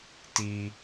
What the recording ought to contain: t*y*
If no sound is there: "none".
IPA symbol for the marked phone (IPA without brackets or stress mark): i